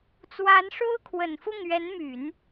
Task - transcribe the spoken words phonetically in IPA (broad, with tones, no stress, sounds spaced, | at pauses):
t͡s w a˧˥ n ʂ o˥ ʊ̯ kʰ w ə˨˩ n f ʊ˥˩ ŋ ɥ ɛ˧˥ n m y˨˩˦ n